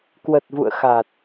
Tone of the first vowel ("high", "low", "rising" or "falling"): low